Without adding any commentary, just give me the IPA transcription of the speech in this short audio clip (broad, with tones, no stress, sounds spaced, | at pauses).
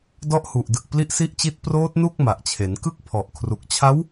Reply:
d ɔ˦˥ ʔ h u˨˩ ʔ d ɯ˨˩ k̚ p l i˦˥ ʔ s i˦˥ ʔ t͡ɕ i˦˥ t̚ p r oː˦˥ t̚ n u˥˩ k̚ m a˨˩ ʔ t͡ɕʰ e˩˦ n k ɯ˦˥ k̚ pʰ ɔ˨˩ ʔ kʰ r u˨˩ k̚ t͡ɕʰ a˦˥ w